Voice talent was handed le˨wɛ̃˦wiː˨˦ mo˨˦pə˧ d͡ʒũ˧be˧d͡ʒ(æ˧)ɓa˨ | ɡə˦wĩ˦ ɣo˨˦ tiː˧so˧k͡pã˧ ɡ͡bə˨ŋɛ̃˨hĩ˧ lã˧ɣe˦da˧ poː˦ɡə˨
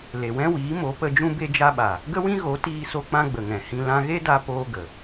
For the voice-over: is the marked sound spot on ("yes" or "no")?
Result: no